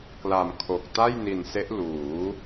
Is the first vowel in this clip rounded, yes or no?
no